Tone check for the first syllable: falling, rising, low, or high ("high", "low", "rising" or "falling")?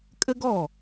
high